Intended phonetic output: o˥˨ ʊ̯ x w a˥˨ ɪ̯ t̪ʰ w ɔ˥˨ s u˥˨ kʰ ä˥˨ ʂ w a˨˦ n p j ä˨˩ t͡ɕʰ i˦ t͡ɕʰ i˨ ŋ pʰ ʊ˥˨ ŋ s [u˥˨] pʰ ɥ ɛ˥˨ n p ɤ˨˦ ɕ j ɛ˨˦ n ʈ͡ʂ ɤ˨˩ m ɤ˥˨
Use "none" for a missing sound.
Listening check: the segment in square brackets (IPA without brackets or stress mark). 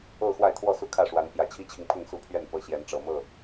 u˥˨